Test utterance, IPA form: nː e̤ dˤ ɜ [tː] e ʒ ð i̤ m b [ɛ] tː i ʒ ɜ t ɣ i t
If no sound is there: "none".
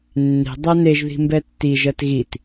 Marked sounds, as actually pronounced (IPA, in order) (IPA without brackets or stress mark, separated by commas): n, ɛ